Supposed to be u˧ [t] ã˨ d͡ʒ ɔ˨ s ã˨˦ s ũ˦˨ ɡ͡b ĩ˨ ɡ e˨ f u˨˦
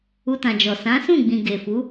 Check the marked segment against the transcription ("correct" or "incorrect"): correct